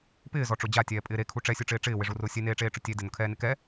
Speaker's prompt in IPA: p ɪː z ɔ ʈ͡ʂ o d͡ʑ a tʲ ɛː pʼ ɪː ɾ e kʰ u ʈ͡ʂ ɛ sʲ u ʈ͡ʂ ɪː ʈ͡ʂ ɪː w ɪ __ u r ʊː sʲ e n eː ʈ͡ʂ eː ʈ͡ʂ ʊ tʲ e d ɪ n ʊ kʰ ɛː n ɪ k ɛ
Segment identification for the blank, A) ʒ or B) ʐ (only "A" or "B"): B